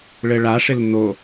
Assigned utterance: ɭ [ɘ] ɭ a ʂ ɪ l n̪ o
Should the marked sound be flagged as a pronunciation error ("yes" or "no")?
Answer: no